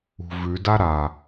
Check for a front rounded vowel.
absent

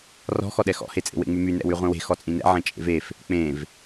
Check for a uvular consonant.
present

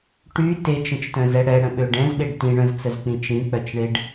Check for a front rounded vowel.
present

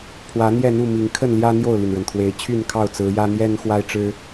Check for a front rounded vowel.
present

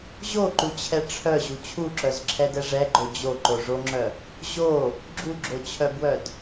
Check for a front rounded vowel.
present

